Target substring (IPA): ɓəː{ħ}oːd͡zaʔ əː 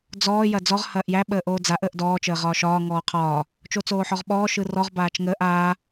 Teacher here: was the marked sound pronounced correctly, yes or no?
no